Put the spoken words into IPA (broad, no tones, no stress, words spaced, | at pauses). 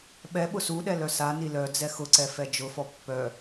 ɓɛ ɓʊsuɗɛ lœsani lœ d͡zɛxʊǀɛ fɛd͡ʒʊfɔ pːœ